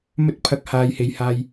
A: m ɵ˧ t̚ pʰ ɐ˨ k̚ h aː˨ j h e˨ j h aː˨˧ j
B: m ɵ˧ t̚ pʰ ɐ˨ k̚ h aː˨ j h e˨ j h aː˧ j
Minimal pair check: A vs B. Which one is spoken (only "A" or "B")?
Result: B